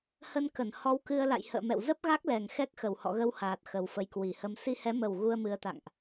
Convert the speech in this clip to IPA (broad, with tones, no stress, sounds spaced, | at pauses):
h ə˧ n k ə˧˩ n h ɔ˧ w k ɨ˧ ə̯ l a̰˧˨ j h ə̰ː˧˨ m ɛ̰˧˨ w z ə˦˥ p̚ ɣ a˦˥ k̚ l ɛ˨˩ ŋ x ɛ˦˥ k̚ x ə˧˩ w h ɔ̰˧˨ ɣ ə˧ w h aː˨˩ t̚ x ə˨˩ w f ə˨˦ j k w i˨˩ h ə˧ m s i˧ h ɛ˨˦ m ə˨˩ w ɣ u˧ ə̯ m ɨ˨˦ ə̯ t̪ a̰˧˨ ŋ ʔ